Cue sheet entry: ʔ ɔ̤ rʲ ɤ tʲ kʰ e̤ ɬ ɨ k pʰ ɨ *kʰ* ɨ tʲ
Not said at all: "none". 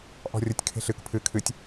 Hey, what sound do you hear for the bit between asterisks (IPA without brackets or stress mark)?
kʰ